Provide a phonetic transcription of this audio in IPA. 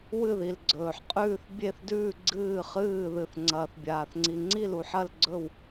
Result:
w ɨ˧˩ ð i˩ l ɡ͡ǀ ɵː˩ ħ qʼ ʉː˧˩ θ bʲ e˧˩ θ d ʉː˧˩ ɡ͡ǀ ɨː˧˩ χ ɨː˧˩ ð ɨ˩ θ ŋ͡ǀ ɐː˩ θ bʲ aː˩ θ ŋ͡ǀ i˩ ŋ͡ǀ i˧˩ l u˩ ħ ɐ˧˩ l ɡ͡ǀ ɵ˧˩ w

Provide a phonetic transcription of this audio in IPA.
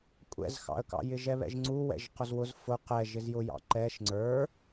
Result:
kʷʼ ɛ̰ z x ɑ̰ ə̯ k ɑ̰ j ɪ ʒ ɛ β ɛ̰ ʒ ŋ͡ǀ u w ɛ̰ ʒ q ʊ z w ʊ z f ʊ q ɛ ʒ ɪ z j ʊ j ɑ̰ ǃ ɛ ʃ ŋ͡ǀ ə˞

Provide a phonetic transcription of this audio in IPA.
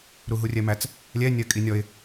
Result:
ɾ u ɦ u rʲ ɛ m æ t͡s | lʲ ɛ nʲ ɜ kʼ i nʲ ɔ ɪ̯

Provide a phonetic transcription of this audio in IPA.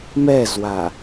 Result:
m ɛ z w a

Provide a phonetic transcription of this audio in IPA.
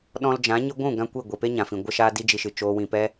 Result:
ɗ ɔ̃˧ l d͡ʒ ã˨˦ ɲ ɨ˧ ɡʷ ũ˦˨ ɡ ã˦ kʷ i˦˨ ɡʷ i˨ p e˦ ɲ ã˨ f ĩ˨ ɡʷ ə˦ ʃ aː˦ d i˦ d͡ʒ i˧ ʃ ɨ˨ t͡ʃ oː˧ w ĩ˨ p ɛ˧

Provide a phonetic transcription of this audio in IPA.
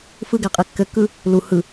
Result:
f ɯ ɡ æ qʼ e kː ɘ kː ɯ | l u h ɯ

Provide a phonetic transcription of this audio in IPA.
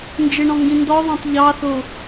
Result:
n d͡ʒ ɪ ɳ ɔ̃ ŋ ɡ ĩ n d ɔ ðˤ ɑ̃ tˤ ʎ ɑ θ ʊ

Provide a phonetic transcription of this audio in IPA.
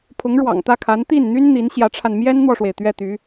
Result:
pʰ ʊ˧˥ ŋ ɻ w ɑ̰˨˩ ŋ t̪ ä˥˩ kʰ a˧˥ n t̪ i˥˩ n n̪ y˥ n n̪ i˧˥ n ɕ j ä˧˥ ʈ͡ʂʰ a˧ n m j ɛ˥ n n̪ w ɔ˨ ʂ w e˩ ɪ̯ t̪ ɥ ɛ˥˩ t̪ y˧˥

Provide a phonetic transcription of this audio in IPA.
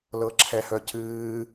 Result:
l ɤ ǁʰ ɛ h œ cʰ ɨː

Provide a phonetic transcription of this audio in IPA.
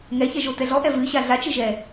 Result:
ŋ ɛ ç ɛ ʒ o t ɛ ɮ ɔ ʔ ɛ v ɨ ɕ a ɮ a t͡ʃ ɨ ʒ ɛ

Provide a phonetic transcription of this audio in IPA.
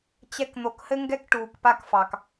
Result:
t͡ɕ ɛ˥ k n̪ o˧ k h ɘ˥ ŋ ɡ ɛ˥ k ʈ uː˧ k p a˥ k f ɑ˧ k

